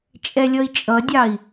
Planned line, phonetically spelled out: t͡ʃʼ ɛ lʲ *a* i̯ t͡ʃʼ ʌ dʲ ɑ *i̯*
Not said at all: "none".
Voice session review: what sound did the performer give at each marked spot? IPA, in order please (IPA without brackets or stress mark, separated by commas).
ʌ, i̯